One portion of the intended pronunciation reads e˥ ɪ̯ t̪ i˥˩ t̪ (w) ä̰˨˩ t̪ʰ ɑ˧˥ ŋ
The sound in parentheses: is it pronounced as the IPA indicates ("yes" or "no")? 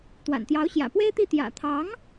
no